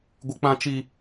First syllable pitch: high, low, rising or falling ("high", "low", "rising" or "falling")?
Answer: high